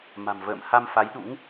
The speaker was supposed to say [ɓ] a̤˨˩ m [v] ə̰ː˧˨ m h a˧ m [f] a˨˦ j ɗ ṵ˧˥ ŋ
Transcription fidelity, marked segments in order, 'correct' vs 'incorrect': incorrect, correct, correct

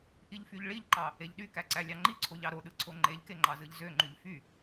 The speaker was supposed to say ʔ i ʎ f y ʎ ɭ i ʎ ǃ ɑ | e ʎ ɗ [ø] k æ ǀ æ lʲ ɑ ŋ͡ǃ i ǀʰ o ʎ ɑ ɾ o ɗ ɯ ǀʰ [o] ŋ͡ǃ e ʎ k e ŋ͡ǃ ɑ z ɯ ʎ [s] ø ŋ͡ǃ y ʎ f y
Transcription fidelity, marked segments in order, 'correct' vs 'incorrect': incorrect, correct, incorrect

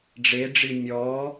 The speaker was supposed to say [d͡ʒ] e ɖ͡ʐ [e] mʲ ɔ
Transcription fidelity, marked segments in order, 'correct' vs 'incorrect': incorrect, incorrect

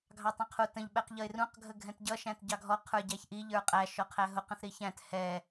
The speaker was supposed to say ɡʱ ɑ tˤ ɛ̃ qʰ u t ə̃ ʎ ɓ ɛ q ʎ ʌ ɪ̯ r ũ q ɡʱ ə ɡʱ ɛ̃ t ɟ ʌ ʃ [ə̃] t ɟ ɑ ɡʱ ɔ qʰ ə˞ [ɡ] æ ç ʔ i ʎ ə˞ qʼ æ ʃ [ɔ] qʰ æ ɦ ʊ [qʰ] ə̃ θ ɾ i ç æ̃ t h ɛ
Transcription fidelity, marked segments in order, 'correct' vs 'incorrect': incorrect, incorrect, correct, incorrect

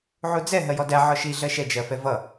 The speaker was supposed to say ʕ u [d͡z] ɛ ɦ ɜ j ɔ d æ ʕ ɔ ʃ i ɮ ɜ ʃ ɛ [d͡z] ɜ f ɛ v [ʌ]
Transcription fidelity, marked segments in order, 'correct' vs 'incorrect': correct, incorrect, correct

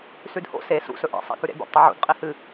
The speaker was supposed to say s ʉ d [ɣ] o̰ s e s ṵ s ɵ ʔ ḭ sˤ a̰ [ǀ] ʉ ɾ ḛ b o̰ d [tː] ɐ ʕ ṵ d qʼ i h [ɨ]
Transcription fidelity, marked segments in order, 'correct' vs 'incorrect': incorrect, incorrect, incorrect, correct

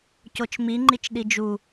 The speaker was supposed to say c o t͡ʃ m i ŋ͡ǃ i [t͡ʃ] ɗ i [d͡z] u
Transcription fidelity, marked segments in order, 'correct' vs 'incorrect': correct, incorrect

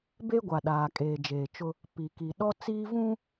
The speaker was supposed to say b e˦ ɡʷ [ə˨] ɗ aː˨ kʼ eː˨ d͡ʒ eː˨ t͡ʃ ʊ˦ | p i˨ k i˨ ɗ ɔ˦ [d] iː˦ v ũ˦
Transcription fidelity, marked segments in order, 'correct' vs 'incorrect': incorrect, incorrect

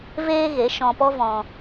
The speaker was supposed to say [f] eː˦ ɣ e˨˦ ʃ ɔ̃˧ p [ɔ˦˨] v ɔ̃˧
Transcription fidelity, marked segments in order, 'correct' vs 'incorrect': incorrect, incorrect

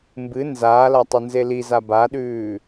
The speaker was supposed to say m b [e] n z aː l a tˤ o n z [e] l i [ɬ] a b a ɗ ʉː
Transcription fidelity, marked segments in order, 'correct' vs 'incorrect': incorrect, correct, incorrect

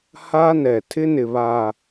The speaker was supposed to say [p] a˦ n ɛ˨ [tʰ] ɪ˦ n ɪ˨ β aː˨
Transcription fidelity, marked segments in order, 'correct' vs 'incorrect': incorrect, correct

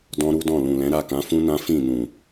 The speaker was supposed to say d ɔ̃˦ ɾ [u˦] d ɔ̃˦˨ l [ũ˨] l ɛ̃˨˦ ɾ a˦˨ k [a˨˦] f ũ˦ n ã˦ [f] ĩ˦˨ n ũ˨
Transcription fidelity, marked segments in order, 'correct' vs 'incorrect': correct, correct, incorrect, correct

